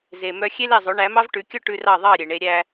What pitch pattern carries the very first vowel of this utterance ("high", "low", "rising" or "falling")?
low